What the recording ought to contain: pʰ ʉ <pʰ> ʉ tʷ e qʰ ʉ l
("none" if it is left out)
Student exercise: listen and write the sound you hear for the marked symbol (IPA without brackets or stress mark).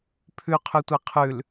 qʰ